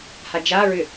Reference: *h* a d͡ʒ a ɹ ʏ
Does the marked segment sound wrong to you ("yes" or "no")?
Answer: no